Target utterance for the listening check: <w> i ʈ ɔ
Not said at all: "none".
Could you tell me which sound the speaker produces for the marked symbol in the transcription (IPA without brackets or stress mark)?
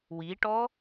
w